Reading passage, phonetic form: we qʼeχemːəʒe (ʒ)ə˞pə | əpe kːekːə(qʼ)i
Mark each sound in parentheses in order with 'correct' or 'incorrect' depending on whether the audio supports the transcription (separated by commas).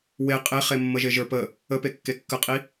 correct, correct